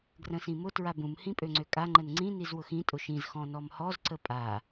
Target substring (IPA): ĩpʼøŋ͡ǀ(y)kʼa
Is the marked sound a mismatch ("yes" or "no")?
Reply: yes